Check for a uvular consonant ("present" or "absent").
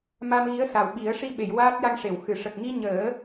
absent